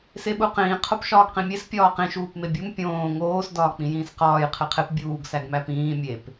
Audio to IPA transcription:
s e ɓ u q ĩː qʰ o p ʃ ɒː ɡ q ĩ mʲ e s pʲ ɒː q ĩ ʃ uː p m e bʲ u m pʲ õː ŋ oː s d ɒː k͡p ĩ j ĩː s q ɒː j qʰ e qʰ e p bʲ uː ɡ s æ ɡ m æ p ĩː mʲ e p

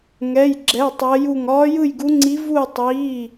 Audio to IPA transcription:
ŋ ɛ˧˥˧ j ɡ͡ǁ ɛ˧˥˧ tˤ ɜ˦˥ j u˥˧ ŋ ɒː˦˥ j ɯ˥˧ j ɡ u˦˥ ŋ͡ǀ i˦˥ v u˥˧ e̯ tˤ iː˧˥˧

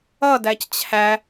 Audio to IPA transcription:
ʌ d æ c t͡ɕʰ æ

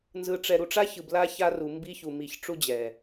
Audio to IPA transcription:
n z ɯ˨ ʈ͡ʂ ɛ˨ ɾ u˨ ʈ͡ʂ a˦ ç ɯ˨ b l a˦ ç a˦ r u˨ m b i˦ ç u˨ m i˨ ç ʈ͡ʂ u˦ d͡ʑ ɛ˨

